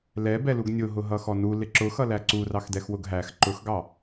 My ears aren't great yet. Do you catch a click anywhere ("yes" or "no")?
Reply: yes